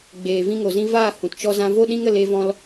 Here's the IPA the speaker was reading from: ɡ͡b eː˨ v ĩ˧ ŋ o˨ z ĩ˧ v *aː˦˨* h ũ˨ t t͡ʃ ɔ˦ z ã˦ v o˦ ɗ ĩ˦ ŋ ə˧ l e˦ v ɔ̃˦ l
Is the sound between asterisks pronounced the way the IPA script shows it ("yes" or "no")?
yes